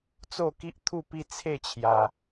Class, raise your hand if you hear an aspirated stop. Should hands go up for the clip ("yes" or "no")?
yes